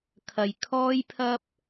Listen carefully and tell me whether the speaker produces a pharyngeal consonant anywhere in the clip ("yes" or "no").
no